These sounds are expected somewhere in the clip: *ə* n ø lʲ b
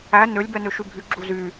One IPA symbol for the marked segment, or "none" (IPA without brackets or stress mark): æ